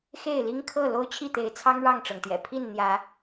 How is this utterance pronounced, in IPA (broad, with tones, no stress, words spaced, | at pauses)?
xe˥˨ɪ̯li˦ŋkʰɤ˥˨ lo˦ʊ̯t͡ɕʰi˥˨t̪e˨˦ɪ̯t͡sʰɑ˦ŋ ɻɑ˥˨ŋʈ͡ʂɤ˩ŋt̪jɛ̰˨˩ pʰi˥˨nn̪jä˨˦